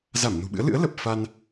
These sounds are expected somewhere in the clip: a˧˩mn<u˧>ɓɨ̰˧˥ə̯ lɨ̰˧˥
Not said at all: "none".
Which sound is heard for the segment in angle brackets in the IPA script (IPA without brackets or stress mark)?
ṳ˨˩